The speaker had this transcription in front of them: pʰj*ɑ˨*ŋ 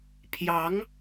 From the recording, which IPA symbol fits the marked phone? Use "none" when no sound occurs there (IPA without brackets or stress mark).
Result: ɑ˧˥